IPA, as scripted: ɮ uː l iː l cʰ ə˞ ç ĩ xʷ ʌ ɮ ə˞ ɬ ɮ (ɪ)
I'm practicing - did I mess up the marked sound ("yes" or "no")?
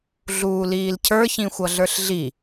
yes